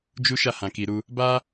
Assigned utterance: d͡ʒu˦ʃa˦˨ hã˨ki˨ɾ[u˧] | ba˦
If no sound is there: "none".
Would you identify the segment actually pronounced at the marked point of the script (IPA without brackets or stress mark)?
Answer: u˧